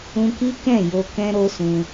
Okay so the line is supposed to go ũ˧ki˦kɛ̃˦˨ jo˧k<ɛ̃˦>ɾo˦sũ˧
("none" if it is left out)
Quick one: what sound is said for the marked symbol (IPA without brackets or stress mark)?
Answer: ɛ̃˦